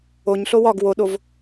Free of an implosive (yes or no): no